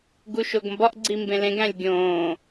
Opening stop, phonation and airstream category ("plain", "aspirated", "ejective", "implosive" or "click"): plain